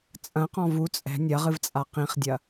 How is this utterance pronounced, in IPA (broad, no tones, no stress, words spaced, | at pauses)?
t͡sʼɐ̃qɔ̃ vu t͡sʼɛ̤ nʲɐʁɨvt͡sʼa qĩχdʲɐ